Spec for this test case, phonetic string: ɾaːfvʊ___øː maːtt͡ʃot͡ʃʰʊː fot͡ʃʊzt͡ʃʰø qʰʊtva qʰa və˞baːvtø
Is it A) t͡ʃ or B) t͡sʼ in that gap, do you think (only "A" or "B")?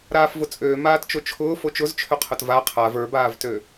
B